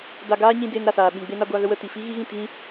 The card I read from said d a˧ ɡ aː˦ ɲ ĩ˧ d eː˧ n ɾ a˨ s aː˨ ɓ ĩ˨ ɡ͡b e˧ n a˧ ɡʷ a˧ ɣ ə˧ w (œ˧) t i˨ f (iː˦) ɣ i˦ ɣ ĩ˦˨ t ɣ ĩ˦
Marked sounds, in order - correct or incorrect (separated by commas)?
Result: incorrect, incorrect